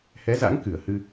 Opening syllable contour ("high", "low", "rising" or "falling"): rising